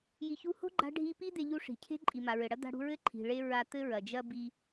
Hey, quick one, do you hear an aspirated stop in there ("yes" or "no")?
yes